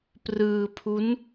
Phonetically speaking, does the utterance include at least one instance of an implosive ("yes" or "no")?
no